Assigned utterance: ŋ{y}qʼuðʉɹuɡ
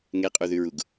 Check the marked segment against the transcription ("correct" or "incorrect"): incorrect